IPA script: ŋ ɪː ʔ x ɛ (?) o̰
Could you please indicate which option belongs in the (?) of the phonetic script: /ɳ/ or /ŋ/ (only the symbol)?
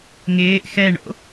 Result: ɳ